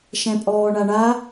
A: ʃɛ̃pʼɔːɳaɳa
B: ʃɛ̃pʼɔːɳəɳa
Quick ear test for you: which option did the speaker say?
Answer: A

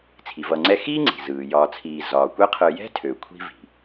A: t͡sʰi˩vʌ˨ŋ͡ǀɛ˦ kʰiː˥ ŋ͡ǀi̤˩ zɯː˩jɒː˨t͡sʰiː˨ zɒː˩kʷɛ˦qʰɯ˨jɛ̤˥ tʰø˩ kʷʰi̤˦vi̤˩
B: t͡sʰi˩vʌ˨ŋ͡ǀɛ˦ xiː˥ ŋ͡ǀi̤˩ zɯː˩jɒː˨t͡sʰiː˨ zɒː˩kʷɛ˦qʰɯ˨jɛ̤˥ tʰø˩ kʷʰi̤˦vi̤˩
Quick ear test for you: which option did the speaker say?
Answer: B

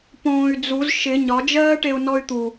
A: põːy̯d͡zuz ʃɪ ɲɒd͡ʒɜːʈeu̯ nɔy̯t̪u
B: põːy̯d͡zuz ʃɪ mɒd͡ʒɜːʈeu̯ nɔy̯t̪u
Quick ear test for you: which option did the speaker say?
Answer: A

